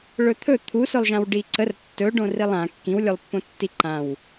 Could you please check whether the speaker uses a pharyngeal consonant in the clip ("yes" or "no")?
no